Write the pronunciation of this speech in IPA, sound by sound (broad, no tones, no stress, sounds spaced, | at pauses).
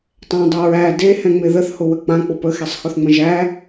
tˤ ɛ̃ dˤ e ɹ æ d e h ɛ̃ ŋ͡m ɪ ð ə θ h ʊ w ə k͡p ã k͡p ʊ p ə x e sˤ x ʊ θ ŋ͡m ə̃ ʒ æ